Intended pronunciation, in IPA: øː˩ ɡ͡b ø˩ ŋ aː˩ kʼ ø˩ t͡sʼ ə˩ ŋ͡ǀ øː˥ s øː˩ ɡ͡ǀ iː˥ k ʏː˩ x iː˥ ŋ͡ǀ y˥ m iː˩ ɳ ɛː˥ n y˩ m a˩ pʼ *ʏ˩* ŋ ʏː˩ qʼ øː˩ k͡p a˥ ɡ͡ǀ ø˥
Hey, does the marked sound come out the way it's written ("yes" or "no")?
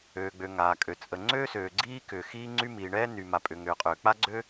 yes